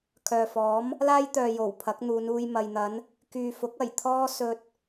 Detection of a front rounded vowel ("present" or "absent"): present